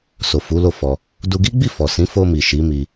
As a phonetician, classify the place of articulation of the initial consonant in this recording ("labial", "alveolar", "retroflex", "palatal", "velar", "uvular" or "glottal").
alveolar